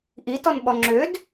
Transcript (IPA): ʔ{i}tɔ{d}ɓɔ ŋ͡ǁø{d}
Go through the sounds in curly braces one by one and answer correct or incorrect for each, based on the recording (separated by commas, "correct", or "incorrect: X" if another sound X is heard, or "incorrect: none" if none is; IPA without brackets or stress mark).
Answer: correct, incorrect: n, correct